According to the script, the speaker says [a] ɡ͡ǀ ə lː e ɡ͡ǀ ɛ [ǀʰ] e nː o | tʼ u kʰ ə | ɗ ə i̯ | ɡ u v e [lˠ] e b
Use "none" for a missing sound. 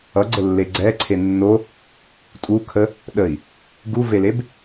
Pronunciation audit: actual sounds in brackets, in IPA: ʌ, ǀʰ, l

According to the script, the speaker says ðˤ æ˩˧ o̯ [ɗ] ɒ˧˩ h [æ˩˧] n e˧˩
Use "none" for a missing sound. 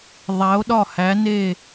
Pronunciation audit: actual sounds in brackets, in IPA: ɗ, æ˩˧

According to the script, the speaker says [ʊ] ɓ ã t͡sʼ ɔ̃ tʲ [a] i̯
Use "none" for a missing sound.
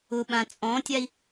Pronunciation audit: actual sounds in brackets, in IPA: ʊ, a

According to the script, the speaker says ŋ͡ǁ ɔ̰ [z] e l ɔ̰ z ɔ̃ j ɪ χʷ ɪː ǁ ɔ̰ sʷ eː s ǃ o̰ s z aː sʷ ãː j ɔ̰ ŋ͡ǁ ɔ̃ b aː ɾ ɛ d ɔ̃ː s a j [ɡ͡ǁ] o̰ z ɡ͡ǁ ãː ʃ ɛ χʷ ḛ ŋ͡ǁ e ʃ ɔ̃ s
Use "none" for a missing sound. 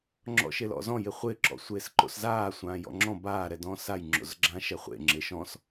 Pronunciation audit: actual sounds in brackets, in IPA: ʃ, ŋ͡ǁ

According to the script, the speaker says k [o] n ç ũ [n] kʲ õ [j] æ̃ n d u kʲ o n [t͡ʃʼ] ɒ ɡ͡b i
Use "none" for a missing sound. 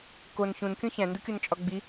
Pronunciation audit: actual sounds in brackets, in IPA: o, n, ç, t͡ʃʼ

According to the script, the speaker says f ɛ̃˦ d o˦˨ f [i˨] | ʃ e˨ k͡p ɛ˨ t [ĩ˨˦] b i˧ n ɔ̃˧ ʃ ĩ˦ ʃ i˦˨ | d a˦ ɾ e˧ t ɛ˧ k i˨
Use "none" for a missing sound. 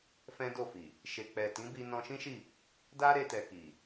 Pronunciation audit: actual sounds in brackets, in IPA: i˨, ĩ˨˦

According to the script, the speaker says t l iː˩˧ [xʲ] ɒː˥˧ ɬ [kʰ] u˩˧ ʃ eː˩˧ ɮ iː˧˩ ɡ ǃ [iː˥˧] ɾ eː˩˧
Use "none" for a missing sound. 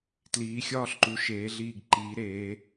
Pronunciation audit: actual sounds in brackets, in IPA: xʲ, ǃ, iː˩˧

